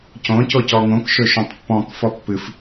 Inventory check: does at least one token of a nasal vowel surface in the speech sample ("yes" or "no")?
yes